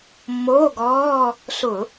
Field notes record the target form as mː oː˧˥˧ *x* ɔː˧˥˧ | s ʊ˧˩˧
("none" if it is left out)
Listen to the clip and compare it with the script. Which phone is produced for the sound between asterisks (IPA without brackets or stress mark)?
ɡ